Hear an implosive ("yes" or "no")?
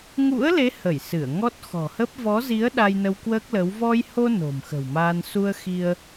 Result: yes